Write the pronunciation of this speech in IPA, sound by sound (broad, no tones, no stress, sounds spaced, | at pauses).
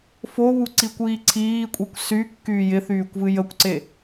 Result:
f o β u ǀ i kʷ iː ǀʰ iː kʷʼ i kʷ s y kː yː j ɪ θ yː kʷ v ɨ j ə kʷ ǀ e